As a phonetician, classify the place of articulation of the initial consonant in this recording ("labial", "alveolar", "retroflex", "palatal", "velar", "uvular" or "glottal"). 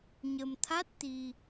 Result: palatal